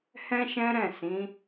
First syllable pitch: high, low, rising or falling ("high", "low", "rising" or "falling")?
high